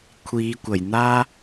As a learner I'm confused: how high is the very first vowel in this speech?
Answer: high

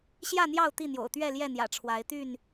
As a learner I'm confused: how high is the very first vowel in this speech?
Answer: low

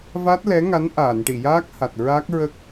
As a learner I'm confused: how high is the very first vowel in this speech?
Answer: low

